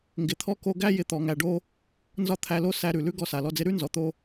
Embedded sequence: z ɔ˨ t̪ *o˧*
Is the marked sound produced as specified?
no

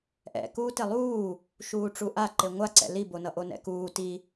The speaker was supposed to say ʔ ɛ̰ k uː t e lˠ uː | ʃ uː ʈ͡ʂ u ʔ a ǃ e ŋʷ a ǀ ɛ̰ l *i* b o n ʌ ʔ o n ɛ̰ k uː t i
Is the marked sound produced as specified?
yes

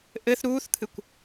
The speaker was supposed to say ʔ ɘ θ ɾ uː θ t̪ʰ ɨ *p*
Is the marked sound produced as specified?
no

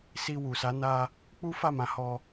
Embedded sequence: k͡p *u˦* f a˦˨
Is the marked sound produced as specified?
yes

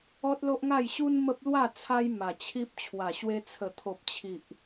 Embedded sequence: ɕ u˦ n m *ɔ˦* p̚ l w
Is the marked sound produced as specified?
no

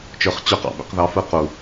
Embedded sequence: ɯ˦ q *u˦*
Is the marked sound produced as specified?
no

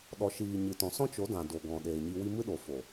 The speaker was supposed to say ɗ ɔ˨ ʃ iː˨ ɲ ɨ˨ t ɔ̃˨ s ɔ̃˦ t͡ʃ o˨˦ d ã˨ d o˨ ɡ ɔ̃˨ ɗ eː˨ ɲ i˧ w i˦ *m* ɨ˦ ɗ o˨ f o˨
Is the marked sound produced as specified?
yes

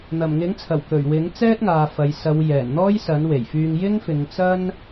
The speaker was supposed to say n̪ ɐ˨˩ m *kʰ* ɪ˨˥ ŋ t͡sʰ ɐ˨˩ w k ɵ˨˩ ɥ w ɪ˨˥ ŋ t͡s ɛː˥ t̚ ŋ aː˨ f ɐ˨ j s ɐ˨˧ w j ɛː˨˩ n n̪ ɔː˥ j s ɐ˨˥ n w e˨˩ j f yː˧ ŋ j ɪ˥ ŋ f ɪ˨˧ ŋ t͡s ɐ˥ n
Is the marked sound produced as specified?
no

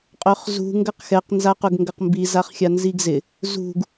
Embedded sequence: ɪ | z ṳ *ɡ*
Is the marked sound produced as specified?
yes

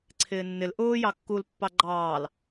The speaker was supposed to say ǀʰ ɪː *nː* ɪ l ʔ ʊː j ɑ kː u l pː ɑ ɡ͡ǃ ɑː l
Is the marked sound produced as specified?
yes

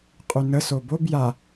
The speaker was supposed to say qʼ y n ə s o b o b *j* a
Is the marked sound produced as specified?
yes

